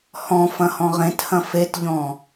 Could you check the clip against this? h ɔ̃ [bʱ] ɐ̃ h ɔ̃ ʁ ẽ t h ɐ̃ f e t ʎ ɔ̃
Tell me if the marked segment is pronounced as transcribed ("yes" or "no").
no